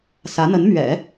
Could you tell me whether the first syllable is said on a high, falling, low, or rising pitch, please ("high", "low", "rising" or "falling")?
rising